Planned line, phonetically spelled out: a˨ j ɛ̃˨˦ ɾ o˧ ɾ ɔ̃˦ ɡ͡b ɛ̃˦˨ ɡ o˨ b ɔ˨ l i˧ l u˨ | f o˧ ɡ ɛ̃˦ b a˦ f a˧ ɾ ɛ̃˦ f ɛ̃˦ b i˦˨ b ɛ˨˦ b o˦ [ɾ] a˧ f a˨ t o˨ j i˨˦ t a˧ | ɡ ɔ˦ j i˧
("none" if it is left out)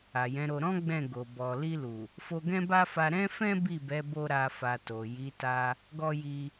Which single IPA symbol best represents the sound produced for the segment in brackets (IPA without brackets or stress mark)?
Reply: ɾ